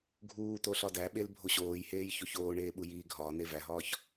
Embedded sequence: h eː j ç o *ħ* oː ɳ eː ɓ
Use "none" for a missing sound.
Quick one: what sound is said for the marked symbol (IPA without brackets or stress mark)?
ç